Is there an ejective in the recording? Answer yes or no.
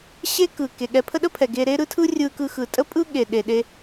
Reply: yes